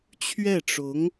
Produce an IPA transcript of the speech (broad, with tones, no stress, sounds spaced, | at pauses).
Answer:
t͡ɕʰ ɥ ɛ˥˩ ʈ͡ʂ ʊ˧˥ ŋ